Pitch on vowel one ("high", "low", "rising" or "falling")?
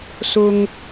low